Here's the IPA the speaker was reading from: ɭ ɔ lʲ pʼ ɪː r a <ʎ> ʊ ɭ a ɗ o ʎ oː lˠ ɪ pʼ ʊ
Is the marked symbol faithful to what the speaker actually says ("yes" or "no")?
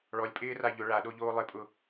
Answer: yes